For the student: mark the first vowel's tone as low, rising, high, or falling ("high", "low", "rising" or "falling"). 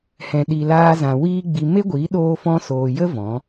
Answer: low